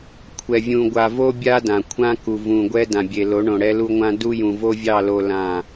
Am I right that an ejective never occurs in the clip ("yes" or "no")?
yes